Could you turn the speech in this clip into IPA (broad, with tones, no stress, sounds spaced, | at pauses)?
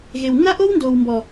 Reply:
ɣ e˨ w nː a˦ ʔ o˦ w n d oː˨ w m b ɔ˨